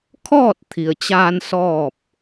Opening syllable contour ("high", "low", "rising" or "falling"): falling